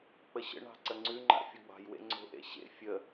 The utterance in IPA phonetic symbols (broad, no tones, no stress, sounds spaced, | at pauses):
k͡p ə ɕ ə̰ ɳ ɑ̤ ǀ ə ŋ͡ǀ ʉ ŋ͡ǃ a̰ fʲ u ɡ͡b ɑ̤ j w ḛ ŋ͡ǀ o̤ ʔ ḛ ɕ ḛ fʲ ə